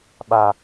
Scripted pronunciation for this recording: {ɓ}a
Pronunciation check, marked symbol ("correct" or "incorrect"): correct